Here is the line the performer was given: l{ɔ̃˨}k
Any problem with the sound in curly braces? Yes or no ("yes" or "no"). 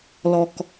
yes